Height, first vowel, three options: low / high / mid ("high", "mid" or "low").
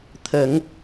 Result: mid